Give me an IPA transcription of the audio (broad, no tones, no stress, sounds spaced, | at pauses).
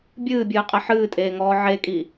bʲ ɨː bʲ ɨː qʼ ɛ ħ ɨː tʼ eː ŋ ɔː ʕ e kʼ i